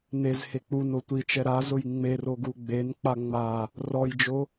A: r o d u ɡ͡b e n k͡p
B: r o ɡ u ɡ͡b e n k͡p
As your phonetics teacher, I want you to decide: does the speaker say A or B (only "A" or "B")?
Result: B